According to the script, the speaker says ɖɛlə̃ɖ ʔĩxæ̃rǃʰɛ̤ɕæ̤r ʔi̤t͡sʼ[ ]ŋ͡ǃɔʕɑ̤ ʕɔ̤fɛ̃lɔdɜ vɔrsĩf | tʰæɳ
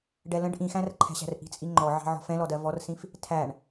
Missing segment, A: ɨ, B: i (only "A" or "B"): B